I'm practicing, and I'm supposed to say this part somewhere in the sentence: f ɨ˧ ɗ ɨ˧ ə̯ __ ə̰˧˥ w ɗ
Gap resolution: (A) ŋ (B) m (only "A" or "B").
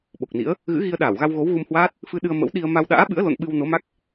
B